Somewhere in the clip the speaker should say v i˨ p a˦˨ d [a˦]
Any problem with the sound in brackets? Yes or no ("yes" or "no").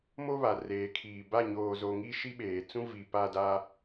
no